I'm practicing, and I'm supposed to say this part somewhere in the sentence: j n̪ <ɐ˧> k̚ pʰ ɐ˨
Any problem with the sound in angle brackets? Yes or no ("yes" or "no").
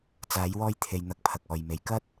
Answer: no